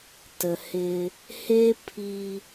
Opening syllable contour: low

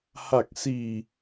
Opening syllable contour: low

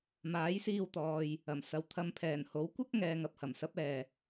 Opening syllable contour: rising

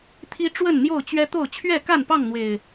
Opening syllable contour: high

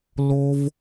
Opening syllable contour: high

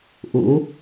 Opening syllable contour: rising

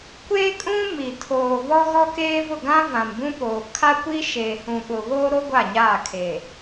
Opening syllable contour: high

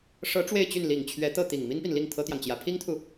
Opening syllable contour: rising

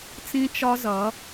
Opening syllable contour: high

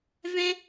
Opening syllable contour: high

